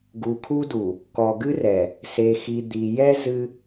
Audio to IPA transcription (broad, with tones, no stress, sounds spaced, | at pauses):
ɡ u˨ kʰ u˦ d u˨ | k ɔ˨ ɡ ɨ˦ r ɛ˨ | s e˨ x i˨ d̪ i˨ j ɛ˦ z ɨ˦